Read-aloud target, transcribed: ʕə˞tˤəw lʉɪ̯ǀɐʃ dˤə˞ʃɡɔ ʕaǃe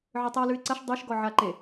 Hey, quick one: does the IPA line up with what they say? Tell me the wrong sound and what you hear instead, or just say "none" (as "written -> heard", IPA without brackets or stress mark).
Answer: none